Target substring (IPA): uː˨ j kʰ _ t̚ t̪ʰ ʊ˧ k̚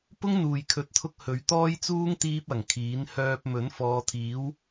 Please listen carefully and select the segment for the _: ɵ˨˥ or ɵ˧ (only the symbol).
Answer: ɵ˨˥